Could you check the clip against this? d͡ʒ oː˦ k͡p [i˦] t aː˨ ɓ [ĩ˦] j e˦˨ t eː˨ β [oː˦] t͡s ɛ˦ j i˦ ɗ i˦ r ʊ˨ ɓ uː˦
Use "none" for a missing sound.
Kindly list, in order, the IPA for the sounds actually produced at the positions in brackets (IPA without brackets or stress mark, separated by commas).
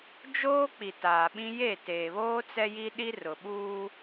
i˨, ĩ˦, oː˦